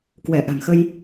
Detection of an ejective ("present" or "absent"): absent